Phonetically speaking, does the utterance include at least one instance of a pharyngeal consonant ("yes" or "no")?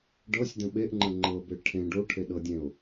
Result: no